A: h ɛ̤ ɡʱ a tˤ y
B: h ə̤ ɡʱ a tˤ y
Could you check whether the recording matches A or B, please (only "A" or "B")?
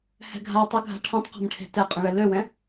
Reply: A